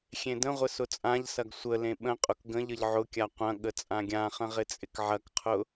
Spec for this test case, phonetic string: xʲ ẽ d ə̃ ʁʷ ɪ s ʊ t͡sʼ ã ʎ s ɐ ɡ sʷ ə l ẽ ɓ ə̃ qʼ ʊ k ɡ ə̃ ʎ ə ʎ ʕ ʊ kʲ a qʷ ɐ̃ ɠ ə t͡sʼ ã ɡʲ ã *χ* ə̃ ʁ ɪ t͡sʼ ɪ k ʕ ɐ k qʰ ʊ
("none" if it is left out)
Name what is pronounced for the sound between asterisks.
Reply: χ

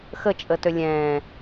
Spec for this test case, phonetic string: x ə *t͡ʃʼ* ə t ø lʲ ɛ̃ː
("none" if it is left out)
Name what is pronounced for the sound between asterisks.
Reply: t͡ʃʼ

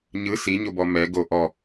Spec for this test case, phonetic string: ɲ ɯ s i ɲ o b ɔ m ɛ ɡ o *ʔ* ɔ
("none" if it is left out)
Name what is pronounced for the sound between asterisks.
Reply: ʔ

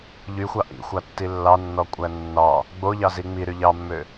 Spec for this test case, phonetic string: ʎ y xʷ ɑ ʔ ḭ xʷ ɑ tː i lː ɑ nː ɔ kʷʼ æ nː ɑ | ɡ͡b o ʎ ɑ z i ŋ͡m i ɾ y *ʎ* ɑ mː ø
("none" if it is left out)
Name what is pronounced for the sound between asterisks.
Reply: ʎ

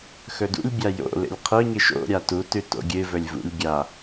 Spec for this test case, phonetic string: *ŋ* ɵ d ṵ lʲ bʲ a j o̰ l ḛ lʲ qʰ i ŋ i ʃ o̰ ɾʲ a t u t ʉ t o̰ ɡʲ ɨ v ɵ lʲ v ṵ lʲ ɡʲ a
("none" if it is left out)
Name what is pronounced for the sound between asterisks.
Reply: x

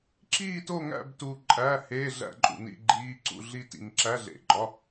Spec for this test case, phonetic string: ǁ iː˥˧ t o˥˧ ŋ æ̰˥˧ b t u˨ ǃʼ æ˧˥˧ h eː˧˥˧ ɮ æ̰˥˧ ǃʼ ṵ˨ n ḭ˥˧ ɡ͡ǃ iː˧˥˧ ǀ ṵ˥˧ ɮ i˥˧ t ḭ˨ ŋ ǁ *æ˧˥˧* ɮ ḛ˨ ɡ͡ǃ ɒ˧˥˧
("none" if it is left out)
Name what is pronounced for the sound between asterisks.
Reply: æ˧˥˧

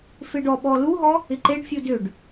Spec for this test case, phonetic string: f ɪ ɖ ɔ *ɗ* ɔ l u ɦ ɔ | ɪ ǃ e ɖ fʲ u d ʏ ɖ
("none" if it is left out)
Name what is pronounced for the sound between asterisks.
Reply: ɓ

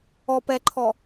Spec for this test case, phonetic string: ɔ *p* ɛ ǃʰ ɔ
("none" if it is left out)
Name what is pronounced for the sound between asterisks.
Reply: p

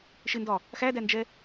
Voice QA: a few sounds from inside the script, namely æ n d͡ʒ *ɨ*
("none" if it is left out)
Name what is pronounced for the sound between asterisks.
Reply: ɛ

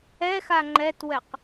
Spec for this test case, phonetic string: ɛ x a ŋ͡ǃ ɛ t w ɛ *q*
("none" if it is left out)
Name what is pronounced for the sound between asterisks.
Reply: q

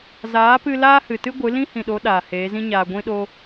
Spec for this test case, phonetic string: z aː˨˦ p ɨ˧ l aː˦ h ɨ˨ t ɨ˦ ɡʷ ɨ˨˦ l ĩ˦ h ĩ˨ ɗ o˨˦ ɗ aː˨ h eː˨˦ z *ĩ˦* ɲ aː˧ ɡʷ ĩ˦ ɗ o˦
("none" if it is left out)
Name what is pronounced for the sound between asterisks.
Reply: ĩ˦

